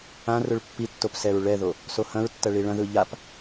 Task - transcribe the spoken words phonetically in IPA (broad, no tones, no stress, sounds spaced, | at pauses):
ã r ʊ ɭ pː i tː o p s ɛ ɹ ɭ ɛ ð o | s o h ɐ̃ ɹ tː ɐ ɭ i ɭ ɐ̃ ð ɯ ʎ a p